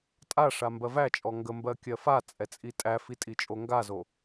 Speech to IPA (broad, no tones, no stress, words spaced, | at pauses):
tʼaʂa mbɜvæt͡ʃʼɔ ŋɡəmbɜ kʲɜfat͡sʼɛ t͡sʼitʼæfi tʼit͡ʃʼoŋɡazo